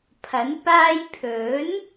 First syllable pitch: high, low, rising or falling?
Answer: rising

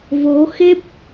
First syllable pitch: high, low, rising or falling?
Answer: rising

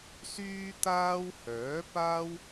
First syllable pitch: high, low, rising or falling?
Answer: high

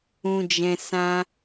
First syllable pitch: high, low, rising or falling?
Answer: low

